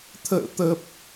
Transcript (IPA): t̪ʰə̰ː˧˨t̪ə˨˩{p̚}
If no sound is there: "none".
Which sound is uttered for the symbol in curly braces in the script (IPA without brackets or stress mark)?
p̚